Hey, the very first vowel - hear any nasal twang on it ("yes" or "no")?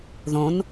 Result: yes